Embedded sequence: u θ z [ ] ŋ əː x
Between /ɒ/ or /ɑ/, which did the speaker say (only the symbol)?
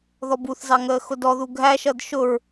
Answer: ɑ